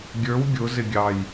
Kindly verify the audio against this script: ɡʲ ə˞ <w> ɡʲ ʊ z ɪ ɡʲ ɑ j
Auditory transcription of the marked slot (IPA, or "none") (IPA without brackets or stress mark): w